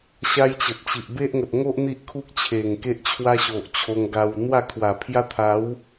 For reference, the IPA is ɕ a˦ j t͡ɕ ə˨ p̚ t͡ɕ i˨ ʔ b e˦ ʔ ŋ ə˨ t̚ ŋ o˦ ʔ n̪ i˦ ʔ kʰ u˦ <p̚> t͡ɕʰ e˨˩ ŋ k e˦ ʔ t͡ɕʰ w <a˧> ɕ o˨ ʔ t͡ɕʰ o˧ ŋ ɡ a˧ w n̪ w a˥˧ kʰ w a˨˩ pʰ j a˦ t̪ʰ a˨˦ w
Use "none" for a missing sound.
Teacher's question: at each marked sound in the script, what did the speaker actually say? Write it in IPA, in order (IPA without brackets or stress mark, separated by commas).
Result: k̚, a˦